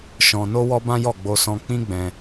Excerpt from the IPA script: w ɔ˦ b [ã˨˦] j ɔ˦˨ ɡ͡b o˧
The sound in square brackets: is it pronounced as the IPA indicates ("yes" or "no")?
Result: no